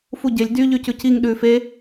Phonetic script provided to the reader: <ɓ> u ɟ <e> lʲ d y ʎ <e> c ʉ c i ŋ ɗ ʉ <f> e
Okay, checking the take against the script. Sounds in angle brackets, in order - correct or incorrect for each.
incorrect: f, correct, incorrect: y, correct

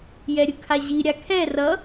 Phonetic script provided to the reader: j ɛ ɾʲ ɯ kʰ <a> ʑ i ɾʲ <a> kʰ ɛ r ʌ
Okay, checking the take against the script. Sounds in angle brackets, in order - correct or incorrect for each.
correct, correct

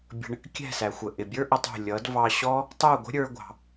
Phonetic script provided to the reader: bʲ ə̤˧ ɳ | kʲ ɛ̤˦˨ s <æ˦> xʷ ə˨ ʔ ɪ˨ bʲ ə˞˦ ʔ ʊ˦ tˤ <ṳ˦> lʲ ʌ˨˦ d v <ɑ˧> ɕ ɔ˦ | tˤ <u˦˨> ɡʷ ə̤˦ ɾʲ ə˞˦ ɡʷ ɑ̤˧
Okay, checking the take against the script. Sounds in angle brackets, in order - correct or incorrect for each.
incorrect: æ˨, incorrect: ṳ˦˨, correct, correct

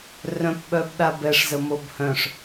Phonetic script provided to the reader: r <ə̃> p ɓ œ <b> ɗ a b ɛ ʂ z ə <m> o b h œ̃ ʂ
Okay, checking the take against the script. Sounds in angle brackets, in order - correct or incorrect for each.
incorrect: œ̃, correct, correct

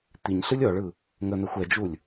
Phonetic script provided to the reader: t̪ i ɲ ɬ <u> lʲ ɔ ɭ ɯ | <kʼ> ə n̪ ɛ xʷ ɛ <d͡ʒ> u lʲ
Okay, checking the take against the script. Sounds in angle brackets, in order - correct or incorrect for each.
incorrect: ɯ, incorrect: ŋ, correct

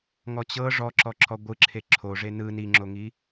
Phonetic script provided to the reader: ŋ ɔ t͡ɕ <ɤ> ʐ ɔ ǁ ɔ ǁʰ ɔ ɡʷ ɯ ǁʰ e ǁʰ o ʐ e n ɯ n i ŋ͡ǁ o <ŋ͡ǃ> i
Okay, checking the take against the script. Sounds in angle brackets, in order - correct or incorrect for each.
correct, incorrect: ŋ

